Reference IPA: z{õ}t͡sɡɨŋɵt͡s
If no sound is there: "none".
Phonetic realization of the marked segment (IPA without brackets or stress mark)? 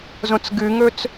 õ